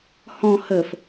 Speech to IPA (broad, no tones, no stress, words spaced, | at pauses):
hɔ̃ həf